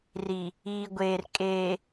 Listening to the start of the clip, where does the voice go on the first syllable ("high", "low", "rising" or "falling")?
low